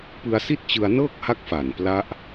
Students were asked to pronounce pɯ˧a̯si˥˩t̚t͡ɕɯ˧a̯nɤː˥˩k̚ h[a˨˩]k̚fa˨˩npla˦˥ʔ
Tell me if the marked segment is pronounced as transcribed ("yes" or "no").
no